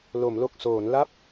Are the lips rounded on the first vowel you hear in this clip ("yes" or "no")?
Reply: yes